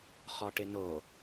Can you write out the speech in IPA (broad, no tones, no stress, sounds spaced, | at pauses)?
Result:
χ ɔ ʈ ɪ n o